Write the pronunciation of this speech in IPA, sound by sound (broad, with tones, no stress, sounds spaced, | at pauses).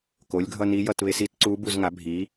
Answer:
k o˩˥ lʲ ɡʱ ʌ˦˨ n i˧˥ j ʌ˦˨ t β e˧˥ s i˧˥ t ǀ u˧˥ b u˦˨ z ŋ a˩˥ bʱ i˩˥